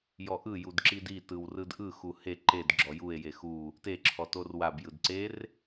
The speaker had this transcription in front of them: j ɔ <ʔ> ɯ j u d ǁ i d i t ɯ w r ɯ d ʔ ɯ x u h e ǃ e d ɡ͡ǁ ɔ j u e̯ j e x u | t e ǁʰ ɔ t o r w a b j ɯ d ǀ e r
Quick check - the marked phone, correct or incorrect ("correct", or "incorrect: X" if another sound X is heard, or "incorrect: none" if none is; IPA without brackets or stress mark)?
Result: correct